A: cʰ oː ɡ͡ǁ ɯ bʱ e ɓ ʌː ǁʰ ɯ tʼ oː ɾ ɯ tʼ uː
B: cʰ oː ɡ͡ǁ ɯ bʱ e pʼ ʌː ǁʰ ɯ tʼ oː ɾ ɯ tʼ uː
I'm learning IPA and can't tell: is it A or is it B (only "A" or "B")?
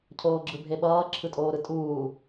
A